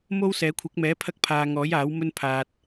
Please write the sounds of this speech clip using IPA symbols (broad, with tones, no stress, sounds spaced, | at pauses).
m o˥ w s ɛː˨˥ kʷʰ ɪ˨˥ k̚ m ɛː˨˥ pʰ ɐ˥ k̚ pʰ aː˧ ŋ ɔː˨˥ j aː˨˥ w m ɵ˥ n pʰ aː˧ t̚